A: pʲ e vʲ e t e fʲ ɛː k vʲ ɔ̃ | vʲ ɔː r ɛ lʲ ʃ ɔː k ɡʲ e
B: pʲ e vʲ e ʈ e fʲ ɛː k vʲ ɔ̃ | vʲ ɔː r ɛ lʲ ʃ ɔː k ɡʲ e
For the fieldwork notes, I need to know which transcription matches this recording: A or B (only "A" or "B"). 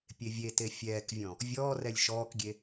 A